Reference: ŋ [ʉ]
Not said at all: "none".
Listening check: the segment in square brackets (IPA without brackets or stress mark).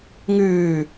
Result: ʉː